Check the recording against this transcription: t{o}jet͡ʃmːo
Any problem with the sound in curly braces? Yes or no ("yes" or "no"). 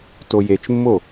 no